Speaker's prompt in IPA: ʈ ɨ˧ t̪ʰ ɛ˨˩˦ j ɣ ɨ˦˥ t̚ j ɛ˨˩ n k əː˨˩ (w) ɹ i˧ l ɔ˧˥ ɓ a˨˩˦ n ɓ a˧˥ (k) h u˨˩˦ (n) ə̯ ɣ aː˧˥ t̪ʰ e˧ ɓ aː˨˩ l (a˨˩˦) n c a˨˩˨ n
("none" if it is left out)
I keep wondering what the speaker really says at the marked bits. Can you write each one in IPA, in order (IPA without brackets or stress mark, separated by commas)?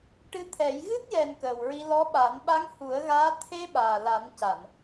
w, ŋ, none, a˨˩˦